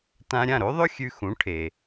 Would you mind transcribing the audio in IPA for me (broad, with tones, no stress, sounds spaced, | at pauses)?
t ã˧ ɾʲ ã˥˩ ɾ o˥ ðˤ ɵ˥ xʲ ʉ˧ x ũ˩˥ ʈʰ e˩